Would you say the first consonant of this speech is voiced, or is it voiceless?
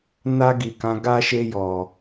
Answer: voiced